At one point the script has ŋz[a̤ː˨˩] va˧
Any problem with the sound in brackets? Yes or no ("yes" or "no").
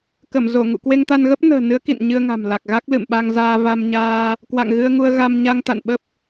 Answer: yes